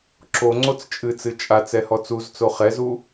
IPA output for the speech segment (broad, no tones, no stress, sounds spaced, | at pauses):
ǁ o ŋ͡ǀ o t͡s t͡ʃʼ ɨ t͡s ɨ t͡ʃʼ a t͡s ɛ h ɔ t͡s u z t͡s o χ ɛ z u